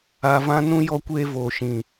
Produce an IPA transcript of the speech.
a˧ v ã˦ n ũ˦ j ɔ˦ kʷ eː˦ v oː˨ ʃ ĩ˨

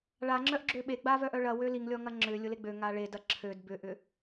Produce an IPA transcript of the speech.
ɭ a ŋ͡ǁ œ ʔ ɡ͡ǁ ø ɓ e ɡ͡b a v œ ʔ œ ɭ ɐ w ø l i ŋ lʲ ɔ ŋ ɐ ŋ͡ǁ ʏ lʲ ʊ l e ɡ͡b ø ŋ a ɭ e d ɐ ǁʰ ø d b ʏ ʔ ʏ

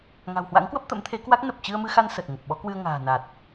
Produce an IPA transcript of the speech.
ŋ a̤˨˩ w h w a̰˧˥ ŋ k w ə˦˥ p̚ t̪ ə̰˧˥ m t̪ʰ e˨˦ k w a˦˥ k̚ n ə˨˩ p̚ t͡ɕ ɨ˧ ə̯ m ɨ˧ x a˧ n s ə˨˩ t̚ ŋ ə˨˩ p̚ ɓ ɔ˨˦ k w ɨ˧ ə̯ ŋ a̤ː˨˩ n a˨˩ t̚

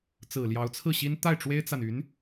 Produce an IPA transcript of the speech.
t͡s ɹ̩˨˩ l j ɑ˧˥ ʊ̯ t͡sʰ ɹ̩˥˩ ɕ i˥ n t̪ a˥˩ ɪ̯ ʈ͡ʂ w e˥ ɪ̯ t͡s a˨ n y˧˥ n

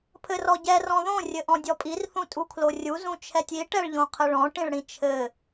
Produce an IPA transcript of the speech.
pʰ ɘ r ɔ ɟ ɛ r ɔ̃ ð õ rʲ ɘ ʔ ɔ̃ dʲ ɔ pʼ i r θ ũ tʼ u kʰ l o rʲ u z ũ t͡ʃʰ ɛ tʲ i ʈ ɛ ɭ ʎ õ qʰ ɘ ɭ ɔ̃ ʈ ĩ ɭ ɽ ĩ t͡ʃʰ ɘ

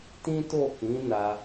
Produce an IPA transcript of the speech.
t ĩ˦ t o˦˨ k ĩ˨˦ n a˧

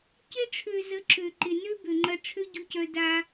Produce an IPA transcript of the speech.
c ɪ˧ ʈ͡ʂʰ ø˨ z ə˨˦ ǁ ø˨ ǃ ɪ˨ n ø˦ b ø˨ ŋ͡ǃ ɐ˧ ʈ͡ʂʰ ø˦ ɟ u˧ c œ˧ d a˧

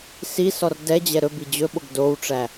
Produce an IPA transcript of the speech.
s i s ɔ r d ɛ d͡ʑ ɛ ɾ ɵ b i d͡ʑ ɵ ɓ o ɡ d o w ʈ͡ʂ æ

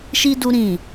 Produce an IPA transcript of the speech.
ʃ i˦ d u˦ ɾ ĩ˦˨

